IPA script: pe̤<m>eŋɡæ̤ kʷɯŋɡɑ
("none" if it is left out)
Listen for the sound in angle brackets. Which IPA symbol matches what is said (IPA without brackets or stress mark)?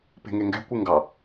ŋ